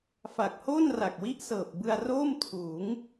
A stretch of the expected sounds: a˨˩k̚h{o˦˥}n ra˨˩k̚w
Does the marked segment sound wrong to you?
yes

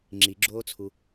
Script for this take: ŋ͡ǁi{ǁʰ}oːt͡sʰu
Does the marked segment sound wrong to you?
yes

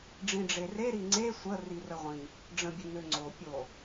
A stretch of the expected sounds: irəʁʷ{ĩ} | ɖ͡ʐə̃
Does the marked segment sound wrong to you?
no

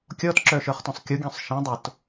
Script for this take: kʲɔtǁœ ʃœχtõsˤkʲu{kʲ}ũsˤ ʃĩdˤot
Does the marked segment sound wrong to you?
yes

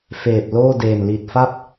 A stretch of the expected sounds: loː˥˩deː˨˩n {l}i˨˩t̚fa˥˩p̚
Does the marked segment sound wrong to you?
no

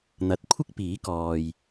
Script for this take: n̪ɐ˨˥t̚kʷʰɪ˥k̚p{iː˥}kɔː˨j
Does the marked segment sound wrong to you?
yes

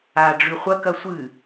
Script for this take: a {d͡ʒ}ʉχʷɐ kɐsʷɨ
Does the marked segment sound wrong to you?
yes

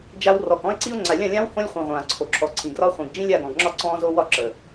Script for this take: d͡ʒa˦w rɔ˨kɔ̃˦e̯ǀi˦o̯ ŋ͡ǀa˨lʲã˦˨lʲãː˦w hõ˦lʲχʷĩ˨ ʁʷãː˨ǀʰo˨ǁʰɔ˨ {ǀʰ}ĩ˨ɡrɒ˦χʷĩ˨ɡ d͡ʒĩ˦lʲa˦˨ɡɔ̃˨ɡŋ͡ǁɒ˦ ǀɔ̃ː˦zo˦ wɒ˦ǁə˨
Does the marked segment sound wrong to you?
no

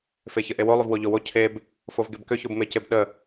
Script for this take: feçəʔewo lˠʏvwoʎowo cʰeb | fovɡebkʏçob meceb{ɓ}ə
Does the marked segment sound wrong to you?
yes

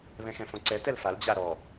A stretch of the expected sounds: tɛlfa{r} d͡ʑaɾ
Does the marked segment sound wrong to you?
yes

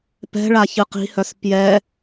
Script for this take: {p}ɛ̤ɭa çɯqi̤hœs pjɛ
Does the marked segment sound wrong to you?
no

